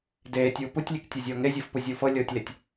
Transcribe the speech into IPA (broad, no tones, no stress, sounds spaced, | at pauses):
d eː tʲ uː p u tʲ lʲ e k tʲ e zʲ ɤː ŋ e zʲ ɤ f p u zʲ uː f ɤ lʲ ɤː tʲ l e tʲ